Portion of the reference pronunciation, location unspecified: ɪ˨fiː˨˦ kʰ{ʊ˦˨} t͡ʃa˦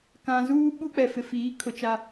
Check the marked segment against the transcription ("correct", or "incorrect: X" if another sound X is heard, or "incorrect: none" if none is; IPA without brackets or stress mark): incorrect: ʊ˨